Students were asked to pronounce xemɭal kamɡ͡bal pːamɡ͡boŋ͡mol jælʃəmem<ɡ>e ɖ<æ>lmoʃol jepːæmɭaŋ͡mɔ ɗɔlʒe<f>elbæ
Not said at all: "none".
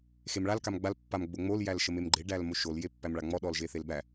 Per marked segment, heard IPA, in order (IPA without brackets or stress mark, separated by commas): ɡ͡ǃ, æ, θ